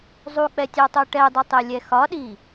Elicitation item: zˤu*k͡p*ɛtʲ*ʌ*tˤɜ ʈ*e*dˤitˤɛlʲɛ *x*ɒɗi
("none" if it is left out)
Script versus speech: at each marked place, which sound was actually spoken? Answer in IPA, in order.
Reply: k͡p, ɑ, ɛ, x

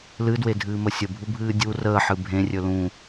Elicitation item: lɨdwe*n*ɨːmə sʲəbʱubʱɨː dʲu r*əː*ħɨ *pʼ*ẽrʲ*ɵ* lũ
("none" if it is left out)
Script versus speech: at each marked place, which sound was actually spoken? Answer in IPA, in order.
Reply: dʱ, əː, bʱ, ɵ

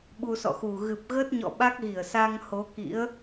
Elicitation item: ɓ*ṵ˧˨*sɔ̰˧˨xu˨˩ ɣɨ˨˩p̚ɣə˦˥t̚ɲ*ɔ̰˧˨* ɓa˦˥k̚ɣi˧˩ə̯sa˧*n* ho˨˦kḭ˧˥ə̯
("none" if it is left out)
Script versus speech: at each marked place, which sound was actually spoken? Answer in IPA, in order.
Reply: u˧, ɔ̰˧˨, ŋ

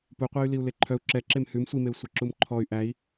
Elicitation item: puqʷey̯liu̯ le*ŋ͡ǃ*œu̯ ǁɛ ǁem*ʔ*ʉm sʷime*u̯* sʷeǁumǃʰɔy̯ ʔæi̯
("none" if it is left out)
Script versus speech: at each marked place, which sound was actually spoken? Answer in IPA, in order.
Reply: ǃʰ, h, u̯

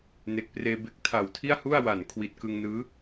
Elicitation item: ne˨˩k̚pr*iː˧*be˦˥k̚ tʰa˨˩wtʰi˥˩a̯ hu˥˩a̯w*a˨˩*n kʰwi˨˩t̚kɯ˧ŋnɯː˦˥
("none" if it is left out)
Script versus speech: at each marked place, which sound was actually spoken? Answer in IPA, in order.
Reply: eː˧, a˨˩

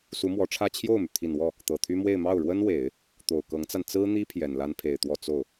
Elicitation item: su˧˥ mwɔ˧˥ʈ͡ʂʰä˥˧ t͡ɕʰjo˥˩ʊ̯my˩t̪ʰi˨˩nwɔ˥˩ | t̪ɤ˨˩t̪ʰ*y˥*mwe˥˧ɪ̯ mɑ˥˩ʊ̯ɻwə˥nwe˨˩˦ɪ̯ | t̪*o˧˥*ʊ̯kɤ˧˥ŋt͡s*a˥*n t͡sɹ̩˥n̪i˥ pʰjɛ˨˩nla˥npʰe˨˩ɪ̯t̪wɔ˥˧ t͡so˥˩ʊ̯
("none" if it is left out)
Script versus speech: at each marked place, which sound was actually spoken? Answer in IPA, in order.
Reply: y˥, o˨˩, a˧

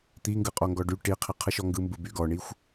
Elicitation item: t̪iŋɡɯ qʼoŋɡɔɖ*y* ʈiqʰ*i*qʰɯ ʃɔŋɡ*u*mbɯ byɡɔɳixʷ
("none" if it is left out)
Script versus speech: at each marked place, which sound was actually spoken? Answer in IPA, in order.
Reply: y, i, ɯ

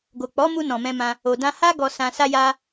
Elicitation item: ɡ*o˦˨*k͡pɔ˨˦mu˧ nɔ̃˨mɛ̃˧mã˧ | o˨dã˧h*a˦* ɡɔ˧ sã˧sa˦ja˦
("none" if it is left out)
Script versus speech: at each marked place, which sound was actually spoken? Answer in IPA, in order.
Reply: o˨, a˦

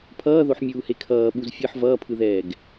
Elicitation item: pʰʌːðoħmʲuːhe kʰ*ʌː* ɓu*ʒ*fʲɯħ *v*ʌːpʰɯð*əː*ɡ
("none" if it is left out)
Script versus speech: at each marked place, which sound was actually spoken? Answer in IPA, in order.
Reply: ʌː, z, v, ɛː

